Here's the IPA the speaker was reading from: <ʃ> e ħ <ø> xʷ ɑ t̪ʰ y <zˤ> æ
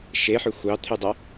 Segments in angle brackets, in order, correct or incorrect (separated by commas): correct, correct, incorrect